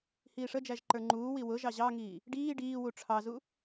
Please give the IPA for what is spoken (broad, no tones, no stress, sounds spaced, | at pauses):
h iː ʂ ə d͡ʒ æ ʒ ǃ ə˞ ŋ͡ǃ uː w i w ʊ ʒ ɑ ʑ ɑ ŋ iː | ɖ iː ɖ iː w u ʈ͡ʂʰ ɑ z u